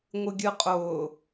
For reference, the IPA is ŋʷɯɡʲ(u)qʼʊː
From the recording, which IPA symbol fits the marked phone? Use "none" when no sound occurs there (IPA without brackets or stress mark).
ɯ